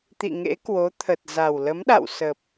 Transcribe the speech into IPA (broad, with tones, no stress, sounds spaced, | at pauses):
t̪ ḭ˧˨ ŋ ḛ˧˥ k w o˨˦ t̪ʰ ə˨˩ t̚ z a˨˩ w l ə˨˦ m ɗ a̰˧˨ w s ə˨˩ p̚